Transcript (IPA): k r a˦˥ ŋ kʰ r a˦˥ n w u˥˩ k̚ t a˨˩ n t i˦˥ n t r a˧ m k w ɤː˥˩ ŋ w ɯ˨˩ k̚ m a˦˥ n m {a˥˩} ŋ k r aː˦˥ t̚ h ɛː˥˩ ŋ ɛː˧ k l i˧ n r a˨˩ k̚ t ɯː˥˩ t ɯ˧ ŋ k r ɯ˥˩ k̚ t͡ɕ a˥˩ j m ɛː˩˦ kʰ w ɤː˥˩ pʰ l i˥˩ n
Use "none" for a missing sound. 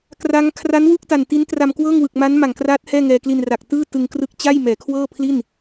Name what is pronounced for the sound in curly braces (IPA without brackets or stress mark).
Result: a˨˩